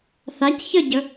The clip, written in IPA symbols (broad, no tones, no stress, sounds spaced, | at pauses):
θ a c ç ə ɟ ə